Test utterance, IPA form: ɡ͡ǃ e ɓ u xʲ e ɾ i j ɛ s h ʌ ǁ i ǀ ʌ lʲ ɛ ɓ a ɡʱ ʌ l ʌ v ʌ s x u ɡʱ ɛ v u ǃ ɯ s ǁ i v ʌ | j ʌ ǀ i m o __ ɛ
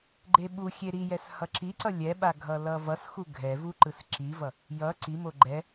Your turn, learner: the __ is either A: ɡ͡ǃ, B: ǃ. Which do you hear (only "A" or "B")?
A